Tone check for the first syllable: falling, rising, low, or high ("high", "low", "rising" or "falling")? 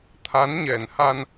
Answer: rising